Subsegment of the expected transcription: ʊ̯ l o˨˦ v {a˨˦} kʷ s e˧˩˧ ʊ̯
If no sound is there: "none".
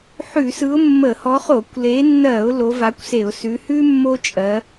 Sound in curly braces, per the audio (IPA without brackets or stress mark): a˨˦